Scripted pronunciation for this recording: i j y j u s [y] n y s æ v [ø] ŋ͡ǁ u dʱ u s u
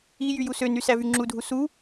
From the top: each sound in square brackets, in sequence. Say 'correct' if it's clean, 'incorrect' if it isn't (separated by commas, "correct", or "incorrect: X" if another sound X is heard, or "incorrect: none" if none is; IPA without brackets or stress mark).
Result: incorrect: ø, incorrect: y